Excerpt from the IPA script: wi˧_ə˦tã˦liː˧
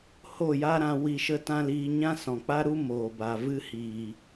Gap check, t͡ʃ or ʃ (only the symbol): ʃ